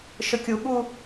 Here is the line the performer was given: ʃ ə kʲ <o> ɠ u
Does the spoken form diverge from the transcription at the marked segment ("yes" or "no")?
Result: yes